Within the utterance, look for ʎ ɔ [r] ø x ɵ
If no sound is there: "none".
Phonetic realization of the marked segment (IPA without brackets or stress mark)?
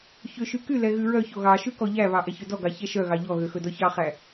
ɣ